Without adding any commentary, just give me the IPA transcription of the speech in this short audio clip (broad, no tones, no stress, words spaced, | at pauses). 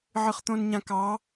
ʕɨχt̪õnɲãkɑ